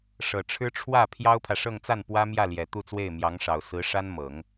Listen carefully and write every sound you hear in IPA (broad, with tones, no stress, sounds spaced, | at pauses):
ʂ ɤ˨˩ ʈ͡ʂʰ ɻ̩˥ ʈ͡ʂʰ w ä˥˩ pʰ j ɑ˥ ʊ̯ pʰ ä˨ ʂ ɤ˥˧ ŋ t͡s a˥˩ n p w ä˥ m j ä˥˩ l j ɛ˨˩ t̪ u˥˧ t͡s w e˥˩ ɪ̯ m j ɑ˧˥ ŋ ʂ ɑ˨˩ ʊ̯ s ɹ̩˧˥ ʂ a˥ n m ɤ˨˩˦ ŋ